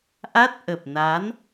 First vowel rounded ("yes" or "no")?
no